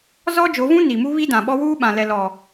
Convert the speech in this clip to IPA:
zɔ˦d͡ʒo˨˦vũ˦ ni˨mu˦ βi˦dã˨ɓɔ˦ wuː˦ ɓã˨lɛ˨ lɔ˨

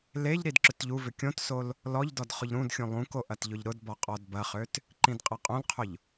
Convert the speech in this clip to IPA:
leʎ ɾidǁʏtʎuvʏ kʲõtsol | lɔʎdɔd χʊʎɾũdxʲũ lˠũko ʔɐtʎʊʎɾʊdbɔ qʼɔdbɐχøt | ǃĩdqʼɐqʼõlqʰʊʎ

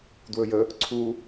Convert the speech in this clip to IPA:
dwɵjə | ǀʰu

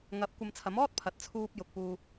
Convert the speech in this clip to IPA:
ŋɐ˨˥p̚ kʷɐ˧mt͡sʰɐ˨˥m ɔː˥t̚ pʰɐ˨t̚t͡sʰuː˧p̚ jʊ˨k̚puː˧

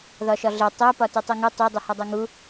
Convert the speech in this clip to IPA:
ðɒʃɒɮe tˤæ pɒtutˤeŋu tˤu dˤuhɒdˤæŋu

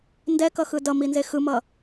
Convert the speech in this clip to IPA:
ndɛkʌxɯ dʌminze xɯmʌ

